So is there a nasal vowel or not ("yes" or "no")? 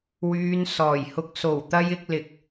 no